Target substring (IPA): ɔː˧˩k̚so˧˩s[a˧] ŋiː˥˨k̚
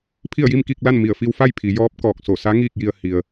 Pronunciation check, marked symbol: incorrect: a˧˥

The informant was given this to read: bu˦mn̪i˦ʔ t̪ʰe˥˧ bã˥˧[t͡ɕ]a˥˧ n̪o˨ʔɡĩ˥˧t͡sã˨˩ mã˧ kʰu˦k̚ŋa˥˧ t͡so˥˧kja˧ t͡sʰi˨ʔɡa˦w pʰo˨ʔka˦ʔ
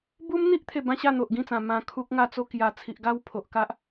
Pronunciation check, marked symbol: incorrect: ɕ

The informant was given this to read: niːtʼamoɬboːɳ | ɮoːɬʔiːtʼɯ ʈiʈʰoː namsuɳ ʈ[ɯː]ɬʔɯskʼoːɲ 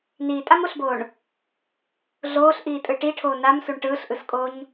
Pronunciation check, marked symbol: correct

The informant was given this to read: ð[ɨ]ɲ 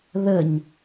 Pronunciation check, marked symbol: incorrect: ə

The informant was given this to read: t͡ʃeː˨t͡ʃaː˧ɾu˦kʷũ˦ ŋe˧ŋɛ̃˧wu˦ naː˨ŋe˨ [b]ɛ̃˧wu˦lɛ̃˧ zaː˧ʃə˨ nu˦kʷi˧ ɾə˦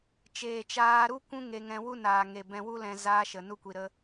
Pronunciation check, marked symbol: correct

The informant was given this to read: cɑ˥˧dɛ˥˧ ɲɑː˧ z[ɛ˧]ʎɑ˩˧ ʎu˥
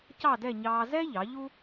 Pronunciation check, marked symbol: incorrect: ɛ˥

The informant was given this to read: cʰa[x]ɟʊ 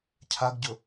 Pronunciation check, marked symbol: incorrect: ɡ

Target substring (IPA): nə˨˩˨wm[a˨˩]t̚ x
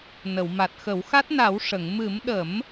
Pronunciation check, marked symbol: correct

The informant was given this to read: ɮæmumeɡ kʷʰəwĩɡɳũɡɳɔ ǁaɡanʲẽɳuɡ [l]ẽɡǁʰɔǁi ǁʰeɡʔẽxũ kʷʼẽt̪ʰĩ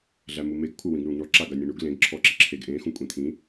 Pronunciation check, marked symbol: correct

